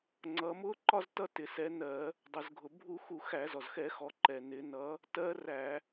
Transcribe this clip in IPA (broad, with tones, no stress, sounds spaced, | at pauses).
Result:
ŋ͡ǀ ʌ˩˧ m ʊ˧˥ ǃ ɒ˧ z t ʌ˧ t ɪ˩ s ɛ˩˧ n ɜ˧˩˧ | dˤ ʊ˩ z ɡʱ ʊ˩ bʱ u˧˩˧ x u˧˩˧ x æ˧˩˧ z ɔ˩ z x ɛ˧˩˧ x ɔ˩˧ ǃ ɛ˩ n ɪ˩˧ n ʌ˧˥ | t ɜ˧˥ r æ˧˩˧